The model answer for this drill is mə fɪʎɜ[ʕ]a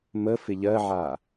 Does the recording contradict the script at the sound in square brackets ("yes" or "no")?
no